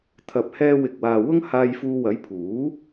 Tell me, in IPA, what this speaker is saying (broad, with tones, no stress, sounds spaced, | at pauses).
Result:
t̪ʰ ɐ˨ p̚ h ɛː˧ w ɪ˨ k̚ w aː˨ w ʊ˥ ŋ h aː˧ j f uː˧ w ɐ˨˥ j pʰ uː˨˥